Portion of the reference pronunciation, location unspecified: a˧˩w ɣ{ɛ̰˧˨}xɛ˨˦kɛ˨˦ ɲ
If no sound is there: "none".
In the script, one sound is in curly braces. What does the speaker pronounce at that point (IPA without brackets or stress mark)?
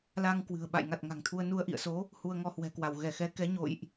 ɛ˧˩